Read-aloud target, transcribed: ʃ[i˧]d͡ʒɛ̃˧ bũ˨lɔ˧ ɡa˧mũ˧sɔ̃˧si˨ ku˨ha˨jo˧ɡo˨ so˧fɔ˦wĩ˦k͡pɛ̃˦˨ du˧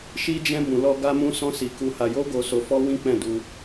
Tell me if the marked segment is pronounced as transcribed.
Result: yes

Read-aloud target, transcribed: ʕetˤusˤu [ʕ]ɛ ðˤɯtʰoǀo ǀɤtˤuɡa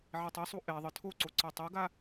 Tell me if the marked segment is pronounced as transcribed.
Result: no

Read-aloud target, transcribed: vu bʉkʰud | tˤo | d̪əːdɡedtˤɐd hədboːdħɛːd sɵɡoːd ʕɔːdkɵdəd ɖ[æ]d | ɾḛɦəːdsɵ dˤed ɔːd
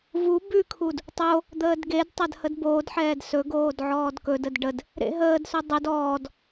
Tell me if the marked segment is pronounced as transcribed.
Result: no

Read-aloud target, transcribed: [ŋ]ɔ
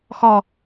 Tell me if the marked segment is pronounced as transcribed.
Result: no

